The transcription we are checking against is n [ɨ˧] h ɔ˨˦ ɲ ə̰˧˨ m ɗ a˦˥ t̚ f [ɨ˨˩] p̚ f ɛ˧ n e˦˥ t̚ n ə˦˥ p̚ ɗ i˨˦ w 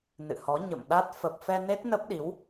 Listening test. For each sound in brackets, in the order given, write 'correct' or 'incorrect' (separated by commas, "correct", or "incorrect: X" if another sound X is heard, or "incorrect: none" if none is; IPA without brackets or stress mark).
incorrect: ɨ̰˧˨, incorrect: ə˨˩